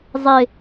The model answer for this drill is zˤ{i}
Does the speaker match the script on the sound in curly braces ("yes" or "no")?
no